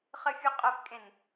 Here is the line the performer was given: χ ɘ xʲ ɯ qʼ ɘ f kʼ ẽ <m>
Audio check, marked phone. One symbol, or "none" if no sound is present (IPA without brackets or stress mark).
n